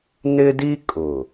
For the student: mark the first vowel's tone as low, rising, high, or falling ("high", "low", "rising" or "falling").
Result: high